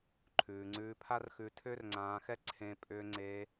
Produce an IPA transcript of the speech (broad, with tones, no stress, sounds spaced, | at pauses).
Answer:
ǃʰ ʉː˩ ŋ͡ǀ ʉː˧ pʰ a˥ r x ʉ˧ tʰ ʏː˥ r ŋ͡ǀ ãː˧ x ɛ˥ ǀʰ ẽ˧ pʼ ʏː˧ ŋ͡ǀ e˧